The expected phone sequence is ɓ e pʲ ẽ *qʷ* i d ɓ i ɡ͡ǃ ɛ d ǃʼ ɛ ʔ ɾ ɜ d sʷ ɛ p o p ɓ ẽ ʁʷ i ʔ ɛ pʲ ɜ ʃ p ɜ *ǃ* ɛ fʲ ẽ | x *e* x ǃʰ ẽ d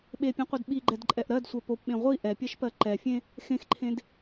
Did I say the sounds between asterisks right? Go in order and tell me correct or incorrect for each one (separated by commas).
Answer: correct, correct, incorrect